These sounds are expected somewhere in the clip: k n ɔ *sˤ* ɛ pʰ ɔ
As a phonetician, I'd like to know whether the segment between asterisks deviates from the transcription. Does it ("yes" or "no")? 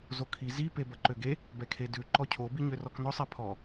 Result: no